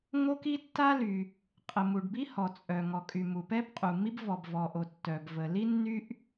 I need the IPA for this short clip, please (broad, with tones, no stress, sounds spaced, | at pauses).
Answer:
ŋ o˥ k i˥ tː a˥ l y˩ | qʼ ə˩ m u˩ ɖ b i˥ h ɔ˩ t͡sʼ œ˩ ŋ ɔ˩ kʼ y˩ m u˩ p ɛ˥ b qʼ u˩ mː i˥ b v ɔ˩ b v ɔ˩ ʔ o˩ tː œ˩ b v ə˩ l i˥ nː y˥ ʔ